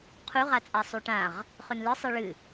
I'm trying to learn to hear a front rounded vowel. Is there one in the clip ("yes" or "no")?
no